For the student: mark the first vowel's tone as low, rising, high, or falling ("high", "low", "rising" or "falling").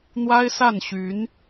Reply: high